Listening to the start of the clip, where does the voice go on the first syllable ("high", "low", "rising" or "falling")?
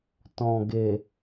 low